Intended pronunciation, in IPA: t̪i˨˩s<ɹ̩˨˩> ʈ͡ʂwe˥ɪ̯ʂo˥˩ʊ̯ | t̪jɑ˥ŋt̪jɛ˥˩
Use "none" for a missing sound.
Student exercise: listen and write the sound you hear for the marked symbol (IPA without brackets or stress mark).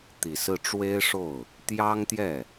ɹ̩˥˩